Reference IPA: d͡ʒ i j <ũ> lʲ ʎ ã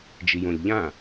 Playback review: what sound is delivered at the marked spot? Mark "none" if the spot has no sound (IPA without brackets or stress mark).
õ